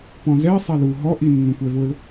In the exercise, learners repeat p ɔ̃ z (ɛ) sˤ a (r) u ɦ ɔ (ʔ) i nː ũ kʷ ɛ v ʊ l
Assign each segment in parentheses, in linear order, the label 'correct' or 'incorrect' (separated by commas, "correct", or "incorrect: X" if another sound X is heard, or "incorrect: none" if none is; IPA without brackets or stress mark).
correct, incorrect: l, correct